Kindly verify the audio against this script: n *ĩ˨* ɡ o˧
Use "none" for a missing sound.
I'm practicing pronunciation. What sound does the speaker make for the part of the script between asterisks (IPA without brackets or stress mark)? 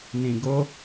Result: ĩ˨